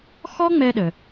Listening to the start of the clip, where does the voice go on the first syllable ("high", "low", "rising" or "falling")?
high